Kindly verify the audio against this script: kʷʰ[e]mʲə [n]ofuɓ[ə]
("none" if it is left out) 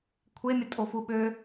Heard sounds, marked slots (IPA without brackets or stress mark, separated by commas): e, tʼ, ø